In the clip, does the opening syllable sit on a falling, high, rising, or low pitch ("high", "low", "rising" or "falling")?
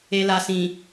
low